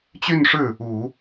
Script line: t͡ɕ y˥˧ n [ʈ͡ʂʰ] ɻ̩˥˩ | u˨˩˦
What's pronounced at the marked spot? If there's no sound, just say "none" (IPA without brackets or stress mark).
ʂ